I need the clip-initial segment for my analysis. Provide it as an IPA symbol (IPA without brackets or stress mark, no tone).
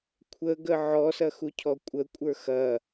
kʷʰ